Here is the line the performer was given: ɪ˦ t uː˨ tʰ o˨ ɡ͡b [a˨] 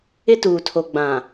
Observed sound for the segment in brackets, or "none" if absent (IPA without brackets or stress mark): ã˨